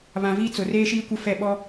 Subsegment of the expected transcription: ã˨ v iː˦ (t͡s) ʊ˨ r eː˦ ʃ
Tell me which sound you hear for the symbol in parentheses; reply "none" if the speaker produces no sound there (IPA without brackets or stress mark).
t͡s